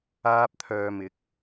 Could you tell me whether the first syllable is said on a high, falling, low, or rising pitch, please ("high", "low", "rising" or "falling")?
high